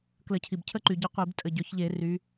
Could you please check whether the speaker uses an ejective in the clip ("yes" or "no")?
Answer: yes